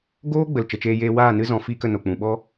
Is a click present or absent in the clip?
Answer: absent